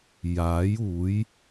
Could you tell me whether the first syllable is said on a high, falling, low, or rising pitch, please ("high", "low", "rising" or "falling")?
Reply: rising